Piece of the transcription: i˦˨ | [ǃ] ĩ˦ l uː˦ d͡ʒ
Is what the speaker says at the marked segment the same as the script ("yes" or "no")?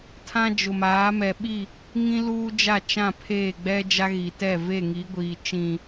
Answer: no